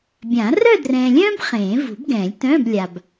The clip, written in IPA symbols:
bʲã˨˩˦ rœ˥˧drɛ̃ː˨lʲœ̃ː˥b χẽː˨˩˦ vṳ˨˩˦b ɡɛ̃ː˨˩˦lʲtœ̃ː˧˥˧blʲa˨b

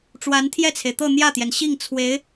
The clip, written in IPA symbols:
ʈ͡ʂwa˧˥nt̪ʰjɛ˥˩t͡sʰe˩ɪ̯t̪ɤ˥˧ n̪jä˥˩t̪jɛ˩nɕi˥˩ŋ t͡sʰwe˧˥ɪ̯

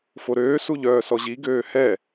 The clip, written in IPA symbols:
foɾøː suʎœːsɔʑi ɡøːhɛ

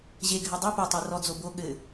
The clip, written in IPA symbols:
ʑeɡʱɘ dˤi po tˤerɔd͡zo bo ɠɘ

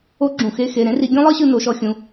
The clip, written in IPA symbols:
o˨˦ ɡ͡ǁũ˩xe˦˨ xe˩˧˩ɾẽ˥ri˨˦ ɡʲõ˥lˠɤ˥ɕɯ˦˨ no˨˦ʃɔ˨˦xʲũ˩˧˩

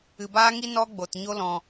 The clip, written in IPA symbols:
ɨ˨baː˦ŋi˦ nɔ˦ɡ͡bo˨tɲo˦lɔ̃˧

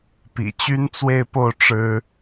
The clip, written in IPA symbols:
pḭ˨˩t͡ɕy˥nt͡swe˥˧ɪ̯po˥˩ʊ̯ ʈ͡ʂɻ̩˥

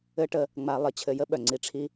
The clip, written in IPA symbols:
ɘ˦ʈə˧ | ŋ͡ma˧lˠə˧ t͡ɕʰɘ˧jə˦ ɓœ˨ŋ͡ǀi˧ ʈ͡ʂʰi˧

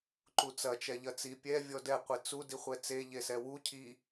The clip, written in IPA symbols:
ǃut͡sɐ t͡ʃɛʎɐt͡si pʲɛ vʲɔdɛ qʷit͡su diχʷɛt͡se ʎesɛwu cʰi

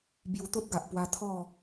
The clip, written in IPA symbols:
bju˧t̪o˦t̚ɡa˨ʔpwa˧ t̪ʰɔ˥˧

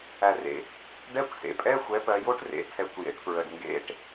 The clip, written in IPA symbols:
æ˨˩rḛ˨˩ | ɖɛ˧˥˧kʷsḛ˩˧pʼɛ˧˥˧ xʷɛ˩˥pɜ˩˧jo˦˥ʈ rḛ˩˥tʰɛ˩˥kʷjḛ˩˧ʈpɹə˨˩ɖ ŋɡḛ˧˥˧ʈ

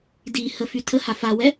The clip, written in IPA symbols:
dihəfy tʰəha fawɛ

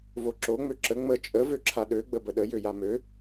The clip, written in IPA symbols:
voǁo ŋ͡møǁə ŋ͡mə t͡ʃʼə vøǁʰaɗø ɡ͡bəbəɗə jøjamø

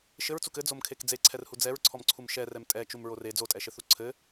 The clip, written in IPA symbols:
ʃɘɹt͡suk ɘd͡zomkʰek d͡zeǀʰɛrhu d͡zɛɹǀʰɔmǀʰum ʃɛrɛm tʼɛt͡ʃumɹor e d͡zotʼɛʃɘθu ǀʰɘ

